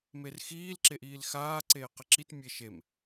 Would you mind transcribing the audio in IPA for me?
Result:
m e r x iː l ǁ e ʔ iː l x aː ǀ eː q ɪ ǁ i t mʲ e ʃ e m

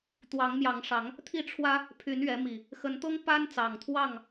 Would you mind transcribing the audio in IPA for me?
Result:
t̪ w ɑ˨˦ ŋ m j ɑ˨˦ ŋ ʂ ɑ˨˦ ŋ | t̪ʰ i˥˨ ʈ͡ʂʰ w ä˦ | pʰ y˨˦ n ɥ ɛ˨˦ m i˨˩ | x ə˨˦ n t̪ ɤ˦ ŋ p a˦ n t͡s ɑ˨˩ ŋ t̪ʰ w ɑ˥˨ ŋ

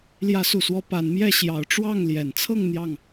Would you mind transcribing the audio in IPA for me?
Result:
l j ä˨˦ s u˨˩ s w ɔ˨˦ p a˨˦ n m j ɛ˥˨ ɕ j ɑ˨˦ ʊ̯ ʈ͡ʂ w ɑ˥˨ ŋ l j ɛ˨˩ n t͡sʰ ɤ˥˨ ŋ n̪ j ɑ˥˨ ŋ

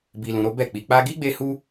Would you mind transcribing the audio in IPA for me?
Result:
b i˧ l ũ˧ ɾ o˦ b ɛ˦˨ k͡p i˧ k͡p a˧ ɡ i˦ ɡ͡b e˧ h u˦

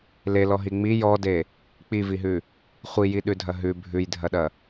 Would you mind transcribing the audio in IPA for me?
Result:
l e l ɔ ɦ i ŋ͡m i j ɔ d e | k͡p i v i ɦ ʉ | χʷ i j i ɗ ʉ dʱ ɐ ɦ ʉ bʱ ʉ j dʱ ɐ ɗ ɐ

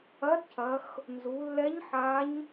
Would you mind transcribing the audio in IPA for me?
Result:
ɐ˧˥ d cʰ ɐ˩˧ x | n z u˩˧ lː ɛ˧˥ ɲ ħ a˧˥ ɲ

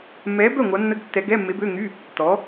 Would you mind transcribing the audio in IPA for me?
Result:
mː ɛː˨˥ b œ˥˩ ŋʷ a˨˥ nː ə˧˥˧ ɡ tː ɛ˨˥ ɡ ɛ˧˥˧ mː e˨˥ b ø˧˥˧ ŋ y˧˥˧ | t ɔ˨˥

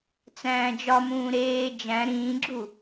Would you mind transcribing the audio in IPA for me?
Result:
t͡s æ̃ː d͡ʒ ɒ m ũː ɾ eː d͡ʒ æ̃ ɾ ĩː ɡ͡ǁ u

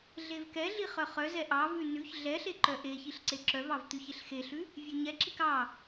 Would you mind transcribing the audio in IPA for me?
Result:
ɮ e v k ɛ ɮ i χ œ χ œ z ɛ ʔ ɑ v ʉ n ʉ ç ɮ ɛ ɬ e ǃ œ ʔ e ç i ɬ ǀ e ǁ œ v ɑ v t̪ ʉ ç e ɬ x e ɬ ʉ | vʲ ʉ ɲ ɛ ǁ i k ɑ

